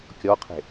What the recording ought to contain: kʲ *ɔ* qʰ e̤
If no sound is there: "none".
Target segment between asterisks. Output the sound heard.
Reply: ɔ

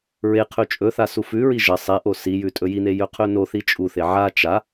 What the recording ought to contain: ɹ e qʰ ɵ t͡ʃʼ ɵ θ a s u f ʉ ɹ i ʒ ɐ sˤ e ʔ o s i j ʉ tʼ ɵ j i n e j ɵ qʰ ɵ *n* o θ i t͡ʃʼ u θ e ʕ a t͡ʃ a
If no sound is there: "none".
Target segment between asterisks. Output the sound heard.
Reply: n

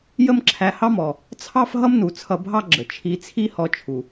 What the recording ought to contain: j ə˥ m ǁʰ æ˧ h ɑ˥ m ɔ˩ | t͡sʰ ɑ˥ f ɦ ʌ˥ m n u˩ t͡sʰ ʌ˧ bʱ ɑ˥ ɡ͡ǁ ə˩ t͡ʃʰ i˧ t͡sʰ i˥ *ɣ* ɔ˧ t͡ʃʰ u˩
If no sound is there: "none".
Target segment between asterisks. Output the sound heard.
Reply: h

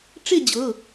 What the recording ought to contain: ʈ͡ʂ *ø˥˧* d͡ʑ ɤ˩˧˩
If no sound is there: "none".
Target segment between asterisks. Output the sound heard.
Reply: e˥˧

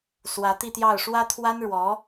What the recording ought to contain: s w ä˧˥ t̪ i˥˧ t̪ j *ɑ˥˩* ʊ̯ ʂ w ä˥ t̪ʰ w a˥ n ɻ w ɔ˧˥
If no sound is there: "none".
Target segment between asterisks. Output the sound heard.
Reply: ɑ˥˩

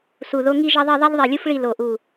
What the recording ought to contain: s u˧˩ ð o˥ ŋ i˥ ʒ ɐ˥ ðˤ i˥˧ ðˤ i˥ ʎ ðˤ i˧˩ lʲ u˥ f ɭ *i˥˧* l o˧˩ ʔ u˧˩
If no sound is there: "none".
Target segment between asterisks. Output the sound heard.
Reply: i˥˧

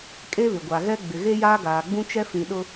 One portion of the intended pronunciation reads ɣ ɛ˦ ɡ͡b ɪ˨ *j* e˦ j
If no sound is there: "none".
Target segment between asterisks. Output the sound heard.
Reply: ɣ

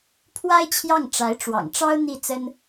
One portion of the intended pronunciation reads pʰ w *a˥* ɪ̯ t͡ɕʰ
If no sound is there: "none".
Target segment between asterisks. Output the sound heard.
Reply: a˥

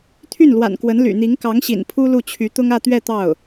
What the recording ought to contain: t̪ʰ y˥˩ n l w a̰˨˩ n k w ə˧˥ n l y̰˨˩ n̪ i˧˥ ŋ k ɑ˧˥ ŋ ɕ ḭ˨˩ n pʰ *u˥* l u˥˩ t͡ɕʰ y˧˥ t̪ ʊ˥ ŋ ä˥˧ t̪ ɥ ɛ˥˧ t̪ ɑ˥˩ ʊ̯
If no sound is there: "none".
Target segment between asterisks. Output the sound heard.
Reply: u˥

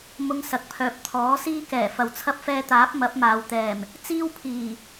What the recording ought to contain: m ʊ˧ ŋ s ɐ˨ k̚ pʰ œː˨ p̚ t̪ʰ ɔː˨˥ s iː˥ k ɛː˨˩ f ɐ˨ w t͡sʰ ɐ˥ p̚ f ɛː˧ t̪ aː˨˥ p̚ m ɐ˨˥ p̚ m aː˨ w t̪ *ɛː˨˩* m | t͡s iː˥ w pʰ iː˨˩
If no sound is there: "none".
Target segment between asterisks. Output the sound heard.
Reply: ɛː˨˩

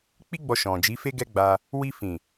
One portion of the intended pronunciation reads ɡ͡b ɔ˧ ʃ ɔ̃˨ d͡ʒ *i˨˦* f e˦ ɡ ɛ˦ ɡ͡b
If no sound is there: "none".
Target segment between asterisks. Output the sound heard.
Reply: i˨˦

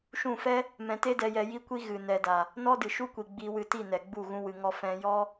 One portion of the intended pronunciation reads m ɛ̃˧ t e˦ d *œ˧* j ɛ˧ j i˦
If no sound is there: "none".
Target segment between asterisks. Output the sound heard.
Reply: ɛ˧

